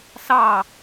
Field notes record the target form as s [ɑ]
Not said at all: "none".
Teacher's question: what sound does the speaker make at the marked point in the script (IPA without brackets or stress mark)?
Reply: ɑ